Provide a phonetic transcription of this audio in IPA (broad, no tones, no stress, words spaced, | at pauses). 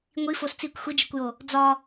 ŋʷifos t͡sikʷ xʷid͡ʒikʷjo | d͡zɒ